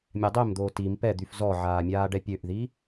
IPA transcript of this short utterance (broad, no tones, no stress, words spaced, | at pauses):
mʲadˤømd̪oː tim pɛd̪yf zɔʕaːmʲaːɖɛ pʲøʔði